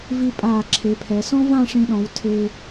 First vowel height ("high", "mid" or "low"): high